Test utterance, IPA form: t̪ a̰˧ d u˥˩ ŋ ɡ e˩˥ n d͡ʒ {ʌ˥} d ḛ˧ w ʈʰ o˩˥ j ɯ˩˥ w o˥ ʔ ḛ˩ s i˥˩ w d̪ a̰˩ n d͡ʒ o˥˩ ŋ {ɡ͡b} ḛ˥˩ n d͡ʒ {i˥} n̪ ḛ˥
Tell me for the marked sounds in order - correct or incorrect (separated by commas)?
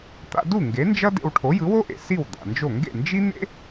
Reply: correct, incorrect, correct